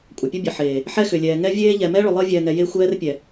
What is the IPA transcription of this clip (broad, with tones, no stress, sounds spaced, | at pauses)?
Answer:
kʷʼ ə˨ pʲ ə˦ bʲ ə˨ ħ eː˨ | ħ ɛ˦ x ʏ˨ lʲ ɛː˨ ŋ ɛ˦ vʲ eː˦ ʎ ɛ˨ m ɛ˦ ɭ ʏ˨ lˠ əː˦ vʲ ɛː˨ ŋ ɛ˨ j e˦ xʷ ɛː˦ r pʲ ɛ˨